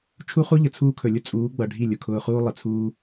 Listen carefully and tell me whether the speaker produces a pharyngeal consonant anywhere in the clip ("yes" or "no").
no